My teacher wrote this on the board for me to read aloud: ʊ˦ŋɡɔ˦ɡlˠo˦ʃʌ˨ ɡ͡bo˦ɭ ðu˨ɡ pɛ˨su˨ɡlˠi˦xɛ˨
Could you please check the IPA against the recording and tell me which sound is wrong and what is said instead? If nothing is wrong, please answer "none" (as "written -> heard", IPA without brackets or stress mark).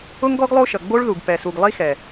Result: none